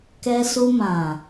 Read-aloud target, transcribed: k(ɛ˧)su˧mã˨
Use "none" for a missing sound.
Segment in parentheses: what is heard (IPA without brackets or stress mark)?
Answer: ɛ˧